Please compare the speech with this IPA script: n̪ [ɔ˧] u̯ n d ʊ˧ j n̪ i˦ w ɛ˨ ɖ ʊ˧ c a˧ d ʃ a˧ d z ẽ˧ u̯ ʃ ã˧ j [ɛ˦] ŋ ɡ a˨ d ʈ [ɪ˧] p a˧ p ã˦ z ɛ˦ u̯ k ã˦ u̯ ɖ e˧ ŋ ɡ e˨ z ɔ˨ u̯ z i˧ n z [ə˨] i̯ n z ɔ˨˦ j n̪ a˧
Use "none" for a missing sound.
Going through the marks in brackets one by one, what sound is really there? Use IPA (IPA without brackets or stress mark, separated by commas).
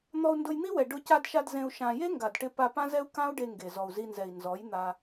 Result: ɔ˧, e˦, ɪ˧, ɛ˨